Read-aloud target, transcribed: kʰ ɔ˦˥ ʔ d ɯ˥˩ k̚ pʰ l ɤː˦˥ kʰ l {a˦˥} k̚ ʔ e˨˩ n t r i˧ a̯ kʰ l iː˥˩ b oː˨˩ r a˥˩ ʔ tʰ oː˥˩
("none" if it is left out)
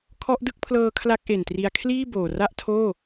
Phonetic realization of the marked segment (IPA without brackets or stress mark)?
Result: a˦˥